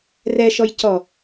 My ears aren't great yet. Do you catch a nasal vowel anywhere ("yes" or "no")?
no